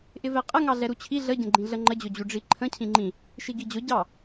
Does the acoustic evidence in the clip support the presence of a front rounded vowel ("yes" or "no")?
no